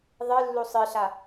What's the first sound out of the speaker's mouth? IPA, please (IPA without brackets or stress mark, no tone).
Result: ðˤ